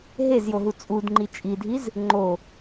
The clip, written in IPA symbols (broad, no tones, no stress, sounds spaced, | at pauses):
ɦ e z j o ɦ u t͡sʼ u d ŋ͡ǃ i t͡ʃʼ i dʱ i z | ŋ͡ǃ o